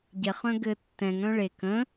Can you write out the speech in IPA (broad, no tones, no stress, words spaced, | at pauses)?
ɟɛχœ̃ ɡɘ tːɛ̃ŋœ̃ ɭek ə̃